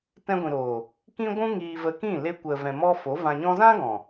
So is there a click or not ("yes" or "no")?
no